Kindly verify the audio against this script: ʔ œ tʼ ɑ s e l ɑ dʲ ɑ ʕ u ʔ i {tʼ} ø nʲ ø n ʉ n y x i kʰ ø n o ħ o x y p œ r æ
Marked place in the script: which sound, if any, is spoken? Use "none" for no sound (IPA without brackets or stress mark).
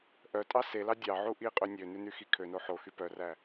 qʼ